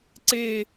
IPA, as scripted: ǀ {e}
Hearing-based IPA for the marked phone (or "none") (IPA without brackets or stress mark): e